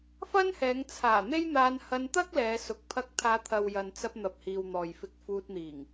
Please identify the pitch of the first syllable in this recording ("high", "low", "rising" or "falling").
high